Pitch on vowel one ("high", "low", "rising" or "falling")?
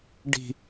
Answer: low